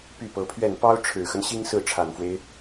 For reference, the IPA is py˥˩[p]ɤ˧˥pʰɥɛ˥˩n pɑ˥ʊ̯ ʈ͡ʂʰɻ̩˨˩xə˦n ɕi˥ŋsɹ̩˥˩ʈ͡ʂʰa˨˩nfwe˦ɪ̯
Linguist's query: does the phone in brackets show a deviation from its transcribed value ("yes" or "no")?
no